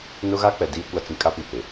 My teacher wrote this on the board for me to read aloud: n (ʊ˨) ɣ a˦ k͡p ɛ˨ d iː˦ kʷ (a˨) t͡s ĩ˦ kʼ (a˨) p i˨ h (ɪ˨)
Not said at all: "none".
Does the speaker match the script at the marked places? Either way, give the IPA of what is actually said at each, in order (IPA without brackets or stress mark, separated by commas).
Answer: ʊ˦, a˦, a˦, ɪ˨